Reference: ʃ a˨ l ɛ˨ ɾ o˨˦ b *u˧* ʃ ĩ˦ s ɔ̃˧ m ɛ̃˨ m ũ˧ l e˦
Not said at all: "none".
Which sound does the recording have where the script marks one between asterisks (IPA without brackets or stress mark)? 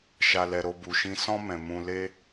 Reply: u˧